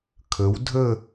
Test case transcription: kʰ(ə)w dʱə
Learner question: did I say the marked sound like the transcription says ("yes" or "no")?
yes